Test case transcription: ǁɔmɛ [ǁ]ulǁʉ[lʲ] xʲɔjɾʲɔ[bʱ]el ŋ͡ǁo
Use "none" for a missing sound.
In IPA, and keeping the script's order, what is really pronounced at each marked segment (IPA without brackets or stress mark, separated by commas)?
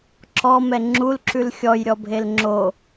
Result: ŋ͡ǁ, l, bʱ